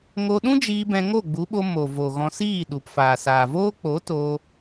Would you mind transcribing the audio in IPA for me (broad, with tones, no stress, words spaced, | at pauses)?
ŋo˧ɗũ˦d͡ʒiː˧ bɛ̃˧ŋo˦˨ɡ͡bu˨˦ɓo˧ mo˨ vo˨ɣɔ̃˧siː˦˨ɗu˨p faː˨saː˨voː˦ k͡po˨˦to˧